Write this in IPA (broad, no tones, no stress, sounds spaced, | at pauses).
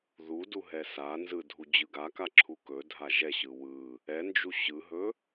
ð u d u ɦ ɛ s a n z ɯ dʱ u d͡ʑ ɯ ɡ a k a ǁʰ u k ɵ dʱ a ʒ ɛ ɕ ɯ w ɯ | ɛ n d͡ʒ u ɕ ɯ ɦ ɵ